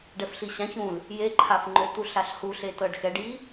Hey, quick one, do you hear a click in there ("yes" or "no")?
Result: yes